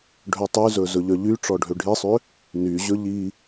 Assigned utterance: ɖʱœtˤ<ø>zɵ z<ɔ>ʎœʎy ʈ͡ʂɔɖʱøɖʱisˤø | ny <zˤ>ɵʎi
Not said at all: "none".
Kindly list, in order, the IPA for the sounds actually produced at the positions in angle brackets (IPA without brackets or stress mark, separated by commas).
y, ɵ, ʑ